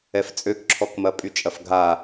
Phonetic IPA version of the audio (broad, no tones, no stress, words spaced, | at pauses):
ɛft͡sʼøkǁʰɔkmɐ pʼyt͡ʃʼɐfɡʱa